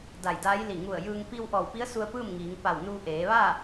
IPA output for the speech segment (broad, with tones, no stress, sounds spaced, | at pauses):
d a˧˩ j d aː˧˥ j l i˧˩ ŋ u˧˩ ə̯ j ɯː˧ ŋ p i˧ w ʔ ɔː˧˩ w p i˧˥ ə̯ s u˧ ə̯ p ɯː˥˨ m ŋ iː˩˧ ŋ p a˧˩ w n uː˧ ʔ eː˩˧ ʋ a˥˨